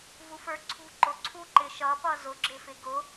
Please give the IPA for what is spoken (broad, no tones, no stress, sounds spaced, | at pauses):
v u f ə˞ ǀʰ ṳ ǃ ʊ ǀʰ u ǃ ɪ ʃ ʌ p ʌ z ʊ ɡ͡ǁ ɪ f ɪ ɡ ʊ